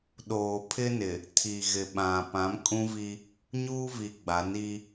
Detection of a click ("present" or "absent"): absent